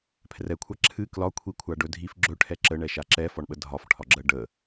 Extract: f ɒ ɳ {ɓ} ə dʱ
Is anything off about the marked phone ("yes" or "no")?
no